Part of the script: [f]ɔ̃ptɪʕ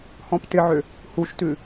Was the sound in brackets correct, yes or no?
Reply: no